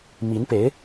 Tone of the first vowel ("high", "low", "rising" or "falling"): rising